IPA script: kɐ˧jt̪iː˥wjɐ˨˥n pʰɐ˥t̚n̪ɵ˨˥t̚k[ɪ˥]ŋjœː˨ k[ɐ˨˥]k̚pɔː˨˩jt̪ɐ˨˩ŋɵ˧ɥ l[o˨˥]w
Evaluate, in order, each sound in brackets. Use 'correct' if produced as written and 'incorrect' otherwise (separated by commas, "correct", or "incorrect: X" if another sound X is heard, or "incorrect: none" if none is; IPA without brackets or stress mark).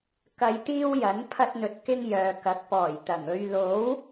correct, correct, correct